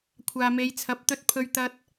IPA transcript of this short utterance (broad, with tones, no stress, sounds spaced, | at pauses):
kʷʰ aː˨ m e˨˧ j t͡sʰ ɐ˨˥ p̚ t̪ ɵ˧ t̚ pʰ ɵ˧ ɥ t̪ ɐ˧ t̚